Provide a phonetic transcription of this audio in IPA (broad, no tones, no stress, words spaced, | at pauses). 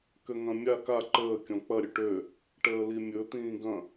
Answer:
køŋɐ̃mʲa ka ǃəː kʲɔ̃k͡pɐ ɾʲɵʈø | ʈəːlimʲɵ t̪ĩːɡɐ̃